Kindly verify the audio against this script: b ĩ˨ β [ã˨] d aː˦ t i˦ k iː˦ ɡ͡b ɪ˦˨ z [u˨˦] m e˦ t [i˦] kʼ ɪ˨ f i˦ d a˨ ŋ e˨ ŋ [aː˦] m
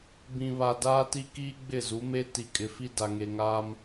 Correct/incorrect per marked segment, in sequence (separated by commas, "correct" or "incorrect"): incorrect, correct, incorrect, correct